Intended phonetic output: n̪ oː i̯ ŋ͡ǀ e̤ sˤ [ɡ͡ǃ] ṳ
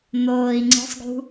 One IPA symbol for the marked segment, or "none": ɡ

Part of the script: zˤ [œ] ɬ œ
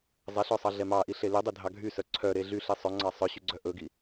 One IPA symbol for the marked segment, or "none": ɛ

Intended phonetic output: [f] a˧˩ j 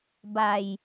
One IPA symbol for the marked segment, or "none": b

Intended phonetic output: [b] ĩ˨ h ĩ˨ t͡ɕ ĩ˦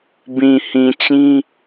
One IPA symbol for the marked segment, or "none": b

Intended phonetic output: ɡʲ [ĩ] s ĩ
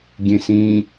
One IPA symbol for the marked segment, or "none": ẽ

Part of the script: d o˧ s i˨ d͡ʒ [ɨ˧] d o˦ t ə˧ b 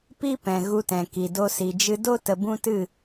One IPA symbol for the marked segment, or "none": ɨ˧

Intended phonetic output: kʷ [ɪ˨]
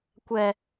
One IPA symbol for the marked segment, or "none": ɛ˨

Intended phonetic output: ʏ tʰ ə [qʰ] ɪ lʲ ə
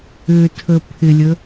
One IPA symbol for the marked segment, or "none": pʰ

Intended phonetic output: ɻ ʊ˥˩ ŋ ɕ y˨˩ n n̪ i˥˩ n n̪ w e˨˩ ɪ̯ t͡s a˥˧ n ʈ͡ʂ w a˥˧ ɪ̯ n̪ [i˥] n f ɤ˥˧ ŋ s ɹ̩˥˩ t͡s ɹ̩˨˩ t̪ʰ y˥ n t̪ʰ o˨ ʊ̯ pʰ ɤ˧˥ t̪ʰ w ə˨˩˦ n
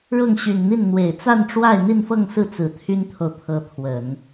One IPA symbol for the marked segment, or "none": i˥˧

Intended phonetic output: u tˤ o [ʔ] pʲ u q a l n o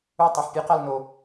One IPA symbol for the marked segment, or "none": ħ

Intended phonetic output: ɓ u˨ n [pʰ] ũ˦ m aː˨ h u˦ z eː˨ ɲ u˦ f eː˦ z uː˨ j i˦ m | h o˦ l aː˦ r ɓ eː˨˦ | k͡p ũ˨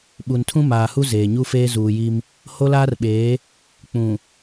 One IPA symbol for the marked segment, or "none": tʰ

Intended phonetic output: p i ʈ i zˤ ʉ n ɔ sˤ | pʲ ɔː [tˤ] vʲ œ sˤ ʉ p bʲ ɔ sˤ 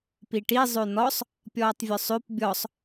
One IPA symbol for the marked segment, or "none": tˤ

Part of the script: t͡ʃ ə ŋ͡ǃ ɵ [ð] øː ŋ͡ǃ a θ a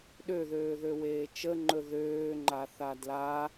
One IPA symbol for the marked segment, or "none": ð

